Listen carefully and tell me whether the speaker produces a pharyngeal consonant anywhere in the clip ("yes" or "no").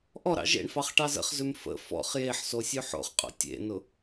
yes